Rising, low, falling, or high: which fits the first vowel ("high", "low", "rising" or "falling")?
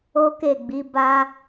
high